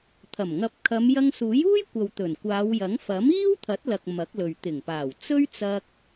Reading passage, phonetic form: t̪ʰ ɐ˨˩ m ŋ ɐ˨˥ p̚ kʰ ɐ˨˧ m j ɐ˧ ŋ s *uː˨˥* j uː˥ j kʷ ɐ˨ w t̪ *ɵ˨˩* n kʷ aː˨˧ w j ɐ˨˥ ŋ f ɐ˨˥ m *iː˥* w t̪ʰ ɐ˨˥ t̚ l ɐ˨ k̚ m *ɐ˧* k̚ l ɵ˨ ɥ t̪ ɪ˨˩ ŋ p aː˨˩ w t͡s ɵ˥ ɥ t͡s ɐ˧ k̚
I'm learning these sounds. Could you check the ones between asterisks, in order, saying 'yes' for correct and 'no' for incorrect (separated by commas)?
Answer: yes, yes, yes, no